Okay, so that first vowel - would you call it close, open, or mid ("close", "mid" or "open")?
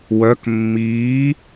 mid